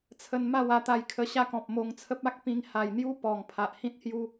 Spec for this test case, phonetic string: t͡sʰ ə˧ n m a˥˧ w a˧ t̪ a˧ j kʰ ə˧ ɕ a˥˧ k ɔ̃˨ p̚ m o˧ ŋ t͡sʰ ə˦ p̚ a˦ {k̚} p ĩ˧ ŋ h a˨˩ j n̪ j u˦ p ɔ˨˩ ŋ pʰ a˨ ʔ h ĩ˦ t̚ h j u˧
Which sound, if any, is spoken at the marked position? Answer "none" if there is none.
k̚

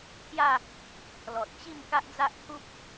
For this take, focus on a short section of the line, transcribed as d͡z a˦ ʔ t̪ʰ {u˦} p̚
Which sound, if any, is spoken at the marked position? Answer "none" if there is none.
u˦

